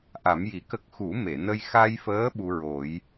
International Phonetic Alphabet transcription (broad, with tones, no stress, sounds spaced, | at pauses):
ʔ a˨˩˦ m j i˨˩˦ k ə˦˥ k̚ x u˨˩˦ m e˨˩˨ n ə˧ j x a˧ j f əː˧˥ ɓ u˧ ɹ o˨˩˦ j